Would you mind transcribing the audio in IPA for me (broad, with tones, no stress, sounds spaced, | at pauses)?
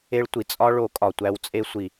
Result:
e˦ ɭ tʷ i˨ t͡sʼ ɒ˦ ɭ o˨˦ kʼ ɒ˨ tʷ æ˧ w t͡sʼ e˦ sʷ i˨